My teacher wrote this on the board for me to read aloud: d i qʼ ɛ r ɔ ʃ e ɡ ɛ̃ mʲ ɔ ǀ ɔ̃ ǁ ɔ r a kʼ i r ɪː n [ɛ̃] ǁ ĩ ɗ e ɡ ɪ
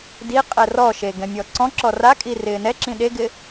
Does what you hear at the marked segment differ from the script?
yes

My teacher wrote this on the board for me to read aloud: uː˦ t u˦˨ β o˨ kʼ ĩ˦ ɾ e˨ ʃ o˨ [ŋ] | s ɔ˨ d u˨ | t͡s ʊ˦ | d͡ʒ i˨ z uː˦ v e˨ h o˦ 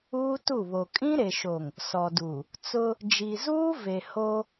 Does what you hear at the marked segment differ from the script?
no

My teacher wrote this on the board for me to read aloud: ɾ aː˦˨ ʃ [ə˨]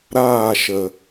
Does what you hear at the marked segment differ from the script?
no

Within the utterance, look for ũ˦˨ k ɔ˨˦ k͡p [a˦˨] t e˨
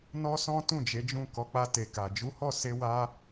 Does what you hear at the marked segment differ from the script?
yes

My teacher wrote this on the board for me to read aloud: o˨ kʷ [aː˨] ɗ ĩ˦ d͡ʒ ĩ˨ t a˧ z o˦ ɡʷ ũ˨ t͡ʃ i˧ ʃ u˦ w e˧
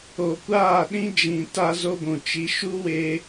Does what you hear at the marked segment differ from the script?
yes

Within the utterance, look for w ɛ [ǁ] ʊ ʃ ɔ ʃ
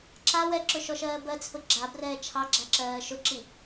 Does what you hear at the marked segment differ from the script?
no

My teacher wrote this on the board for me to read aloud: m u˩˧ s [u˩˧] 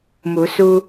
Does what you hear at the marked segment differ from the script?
yes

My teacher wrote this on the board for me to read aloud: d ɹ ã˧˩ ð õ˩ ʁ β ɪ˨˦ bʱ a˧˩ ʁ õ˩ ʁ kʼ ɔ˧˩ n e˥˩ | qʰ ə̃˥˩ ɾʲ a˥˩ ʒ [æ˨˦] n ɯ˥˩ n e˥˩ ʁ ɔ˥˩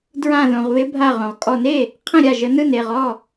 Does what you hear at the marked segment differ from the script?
yes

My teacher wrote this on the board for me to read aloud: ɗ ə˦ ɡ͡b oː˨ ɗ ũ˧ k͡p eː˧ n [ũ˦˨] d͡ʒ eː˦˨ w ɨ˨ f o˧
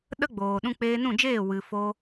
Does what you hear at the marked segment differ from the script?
no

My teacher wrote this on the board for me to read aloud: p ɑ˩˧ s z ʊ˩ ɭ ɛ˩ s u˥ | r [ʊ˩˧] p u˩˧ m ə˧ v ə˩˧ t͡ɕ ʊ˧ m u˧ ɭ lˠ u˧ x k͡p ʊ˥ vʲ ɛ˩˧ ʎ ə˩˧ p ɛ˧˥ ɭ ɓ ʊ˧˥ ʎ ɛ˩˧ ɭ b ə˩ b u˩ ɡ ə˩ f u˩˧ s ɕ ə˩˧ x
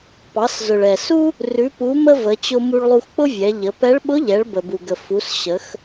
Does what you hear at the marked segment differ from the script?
yes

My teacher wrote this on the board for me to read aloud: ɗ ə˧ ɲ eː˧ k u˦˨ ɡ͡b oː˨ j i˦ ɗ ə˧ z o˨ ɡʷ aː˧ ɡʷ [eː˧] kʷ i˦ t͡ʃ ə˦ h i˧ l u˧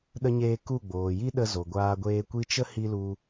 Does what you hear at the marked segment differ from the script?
no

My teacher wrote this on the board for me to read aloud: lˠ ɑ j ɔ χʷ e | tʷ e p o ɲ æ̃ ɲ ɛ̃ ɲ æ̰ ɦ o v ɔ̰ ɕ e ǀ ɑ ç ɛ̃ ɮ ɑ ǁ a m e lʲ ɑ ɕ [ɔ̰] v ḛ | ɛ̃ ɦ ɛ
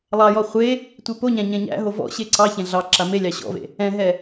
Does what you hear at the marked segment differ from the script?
no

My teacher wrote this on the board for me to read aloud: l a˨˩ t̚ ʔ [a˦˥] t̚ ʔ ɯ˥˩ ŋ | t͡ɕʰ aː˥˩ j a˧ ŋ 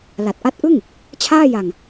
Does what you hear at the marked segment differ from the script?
no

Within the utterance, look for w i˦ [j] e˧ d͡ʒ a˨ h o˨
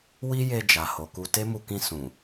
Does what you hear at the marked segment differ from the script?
no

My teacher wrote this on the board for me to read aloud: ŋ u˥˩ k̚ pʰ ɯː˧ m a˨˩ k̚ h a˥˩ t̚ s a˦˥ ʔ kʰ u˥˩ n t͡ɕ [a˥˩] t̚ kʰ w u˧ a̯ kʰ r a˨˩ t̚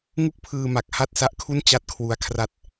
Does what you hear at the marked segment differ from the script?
no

